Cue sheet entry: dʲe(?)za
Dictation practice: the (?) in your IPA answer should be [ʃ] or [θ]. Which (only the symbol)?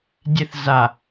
θ